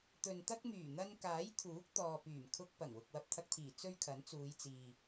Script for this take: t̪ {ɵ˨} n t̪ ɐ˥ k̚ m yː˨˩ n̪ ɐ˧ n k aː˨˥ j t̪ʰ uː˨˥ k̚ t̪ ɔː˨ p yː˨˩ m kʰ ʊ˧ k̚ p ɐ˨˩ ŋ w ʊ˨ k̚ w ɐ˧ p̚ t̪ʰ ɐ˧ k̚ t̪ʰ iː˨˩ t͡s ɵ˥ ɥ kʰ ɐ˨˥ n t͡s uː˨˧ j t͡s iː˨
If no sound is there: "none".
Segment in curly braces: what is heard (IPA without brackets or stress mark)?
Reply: ɵ˨